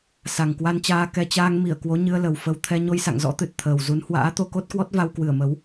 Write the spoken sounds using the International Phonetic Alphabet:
sa˨˩ŋkwa˧nt͡ɕaː˧ kɛ˧ t͡ɕaː˧ŋ mi˧˩ə̯ kwo˨˦ɲɨ˧ə̯lə˨˩wfə˧w t̪ʰɛ˧ɲo˧jsa̰˧˨ŋzɔ̰˧˥ t̪ɨ˨˩t̚t̪ʰəː˨˩wzu˨˦n hwa̰ː˧˥t̪o˧ko˦˥t̚kwɔ˦˥t̚ va˧wkwɨ˧˩ə̯mə˨˦w

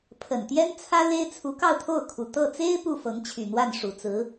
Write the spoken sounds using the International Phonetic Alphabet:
pʰə˨˩nt̪jɛ˥n t͡sʰä˥le˥ɪ̯t͡sʰu˧˥ kɑ˥˧ʊ̯t̪ʰo˥˩ʊ̯kʰu˨˩ t̪ɤ˥˩ t͡se˥ɪ̯ pu˥˩fɤ˧˥ŋt͡ɕʰy˨˩n̪wa˥˩n ʂu˨˩t͡sɹ̩˧˥

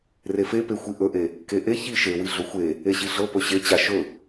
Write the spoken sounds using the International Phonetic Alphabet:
refepexʷi ʔɵʔe | keʔe çi ʃewi ɮɵxʷe | eɕiɮɤ pɵɕet͡ɕa ʃɵ

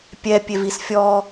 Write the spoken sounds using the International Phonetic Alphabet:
pʲɛ pʲevisfʲɔ

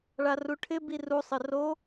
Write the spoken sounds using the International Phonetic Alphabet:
ɭaruʈʰɪ biru sˤɪro

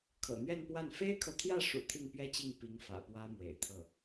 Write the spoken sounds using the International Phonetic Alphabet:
kʰɤ̰˨˩n̪ɥɛ˥˧npwa˥˩n fe˥ɪ̯kʰɤ˨ t̪ʰjä˥˩ʂṵ˨˩ t̪ʰi˥˩ŋpɥɛ˥t͡ɕi˥˩ŋ pi˧˥ŋfä̰˨˩ pwä˥mwḛ˨˩ɪ̯t̪ʰɤ˥˩

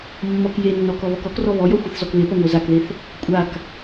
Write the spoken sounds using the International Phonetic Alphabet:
mːɔk jenːɔ kɔβɔkɔkrɔ βɔjɔ xʷeθzɔkβepɔ ŋʷə˞zakðeθ | kʷʼak

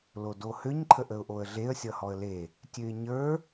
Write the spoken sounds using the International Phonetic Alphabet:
lodohøɲ ǃʰəʔəʊ̯ʔoə̯ɮeə̯ sʲʌhɔə̯le | tʲøɪ̯ɲə˞

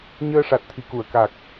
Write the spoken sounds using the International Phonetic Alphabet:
ɲəː˧ʂa˨˩t̚ t̪ʰi˨˩ku˨˩˨ə̯ka˨˩k̚

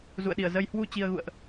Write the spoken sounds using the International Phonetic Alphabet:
zṵ˧˨ə̯ɗi˧˩ə̯ zə˧j hwu˧ t͡ɕi˧ə̯ɣṵ˧˨ə̯ʔ

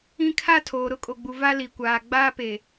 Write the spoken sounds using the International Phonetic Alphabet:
ĩ˦ kʰa˦ tʰoː˨ɾʊ˦kʼo˨ɡ͡bu˨ va˦li˨kʷaː˨ ɡ͡baː˦pe˨

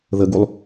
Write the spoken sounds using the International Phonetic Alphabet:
ðəɡulˠ

